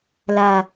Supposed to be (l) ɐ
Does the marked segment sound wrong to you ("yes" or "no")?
no